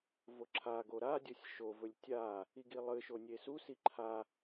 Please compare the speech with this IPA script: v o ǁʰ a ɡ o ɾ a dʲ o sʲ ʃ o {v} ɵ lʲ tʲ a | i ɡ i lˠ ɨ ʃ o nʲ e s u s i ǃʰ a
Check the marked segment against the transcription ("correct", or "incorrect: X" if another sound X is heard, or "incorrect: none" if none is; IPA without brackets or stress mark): correct